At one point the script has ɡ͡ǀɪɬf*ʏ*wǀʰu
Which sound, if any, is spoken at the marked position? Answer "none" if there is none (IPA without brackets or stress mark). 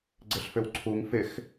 ʏ